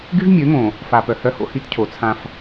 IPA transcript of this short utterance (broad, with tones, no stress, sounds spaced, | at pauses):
ɡ y˦ v mʲ ø˨˦ ŋ õ˨ | f a˨ p œ˨ h œ˦ h o̰˦ h i˦ t cʰ o˨ t͡sʰ ã˦ f